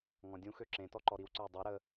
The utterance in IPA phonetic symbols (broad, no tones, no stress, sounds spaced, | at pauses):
ŋ ɔ̃ dʲ ũ x ø ǁ ẽ t ɔ ǃ ɔ ɾ i w ǀ ə˞ j dˤ e ɾ ə